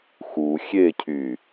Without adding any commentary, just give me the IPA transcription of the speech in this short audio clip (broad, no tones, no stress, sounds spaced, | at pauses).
x u xʲ e cʰ y